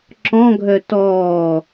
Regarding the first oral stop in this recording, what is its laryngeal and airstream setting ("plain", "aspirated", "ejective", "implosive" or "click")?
click